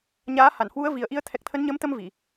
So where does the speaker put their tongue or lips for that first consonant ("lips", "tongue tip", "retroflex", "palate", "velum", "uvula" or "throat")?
palate